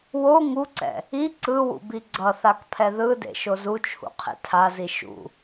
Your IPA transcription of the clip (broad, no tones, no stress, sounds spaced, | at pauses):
w o ŋ u ǀ ɛ̰ | i ǀ ɯ w ṵ b i ɡ͡ǀ ʌ θ a k pʰ ɛ ð ɯ d ḛ ʃ o z u t͡ʃʰ ṵ qʰ ḛ tʰ a z i ʃ ṵ